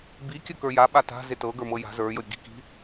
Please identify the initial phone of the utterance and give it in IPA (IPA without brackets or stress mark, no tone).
b